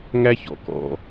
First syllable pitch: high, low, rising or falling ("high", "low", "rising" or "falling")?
high